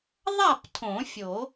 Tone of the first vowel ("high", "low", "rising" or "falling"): falling